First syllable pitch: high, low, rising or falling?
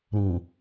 low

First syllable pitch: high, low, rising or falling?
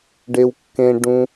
high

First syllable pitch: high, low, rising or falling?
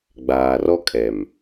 low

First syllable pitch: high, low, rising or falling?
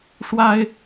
high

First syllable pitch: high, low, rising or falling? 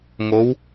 rising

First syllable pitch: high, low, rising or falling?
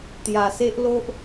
low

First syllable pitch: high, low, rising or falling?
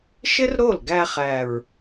high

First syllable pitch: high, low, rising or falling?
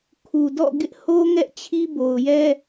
low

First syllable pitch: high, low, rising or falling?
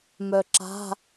low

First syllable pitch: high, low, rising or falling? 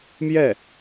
falling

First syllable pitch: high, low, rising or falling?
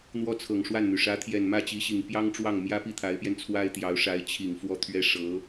falling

